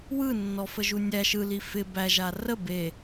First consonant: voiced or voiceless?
voiced